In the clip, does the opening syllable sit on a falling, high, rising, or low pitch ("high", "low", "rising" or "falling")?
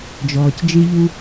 low